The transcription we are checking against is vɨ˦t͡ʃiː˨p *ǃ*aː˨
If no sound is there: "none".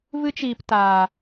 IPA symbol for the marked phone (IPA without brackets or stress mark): t